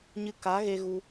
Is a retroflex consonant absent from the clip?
yes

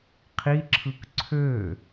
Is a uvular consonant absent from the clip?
no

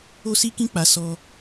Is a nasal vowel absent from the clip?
no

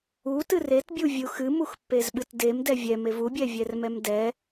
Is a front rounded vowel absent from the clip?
yes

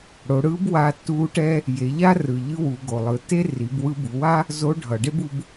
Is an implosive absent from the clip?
yes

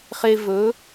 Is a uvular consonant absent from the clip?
no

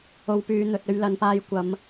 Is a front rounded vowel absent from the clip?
no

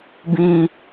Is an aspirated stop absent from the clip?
yes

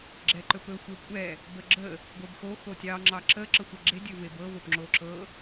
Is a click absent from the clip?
no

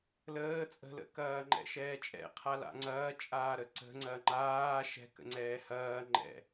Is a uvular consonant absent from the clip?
no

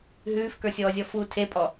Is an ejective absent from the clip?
no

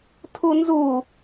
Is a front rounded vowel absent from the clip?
yes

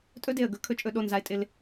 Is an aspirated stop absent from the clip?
no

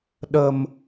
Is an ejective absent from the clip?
yes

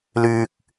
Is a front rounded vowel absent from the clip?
no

